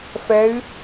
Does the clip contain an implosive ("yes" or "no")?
no